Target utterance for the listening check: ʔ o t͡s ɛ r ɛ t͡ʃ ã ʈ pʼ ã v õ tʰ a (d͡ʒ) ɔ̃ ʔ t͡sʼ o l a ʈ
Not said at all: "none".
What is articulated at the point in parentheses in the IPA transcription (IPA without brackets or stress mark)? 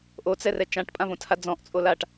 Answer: d͡z